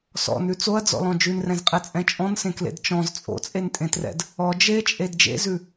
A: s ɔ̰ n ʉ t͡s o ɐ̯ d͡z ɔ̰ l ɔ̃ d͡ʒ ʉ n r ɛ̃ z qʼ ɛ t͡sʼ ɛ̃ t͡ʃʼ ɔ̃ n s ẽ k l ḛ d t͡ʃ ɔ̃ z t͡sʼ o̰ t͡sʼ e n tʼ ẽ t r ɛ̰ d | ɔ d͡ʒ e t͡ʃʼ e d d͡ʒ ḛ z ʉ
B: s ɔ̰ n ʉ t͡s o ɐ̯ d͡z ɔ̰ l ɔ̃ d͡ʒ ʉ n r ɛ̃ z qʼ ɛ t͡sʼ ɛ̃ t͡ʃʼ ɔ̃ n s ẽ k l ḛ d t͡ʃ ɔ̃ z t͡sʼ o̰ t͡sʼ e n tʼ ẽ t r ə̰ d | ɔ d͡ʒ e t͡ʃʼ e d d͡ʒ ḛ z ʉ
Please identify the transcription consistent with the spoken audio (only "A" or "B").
A